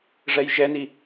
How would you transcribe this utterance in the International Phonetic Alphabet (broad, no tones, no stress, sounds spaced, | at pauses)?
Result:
ʐ ɛ j ʒ ɛ n i